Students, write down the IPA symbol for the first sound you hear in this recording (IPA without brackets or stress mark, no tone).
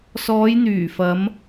s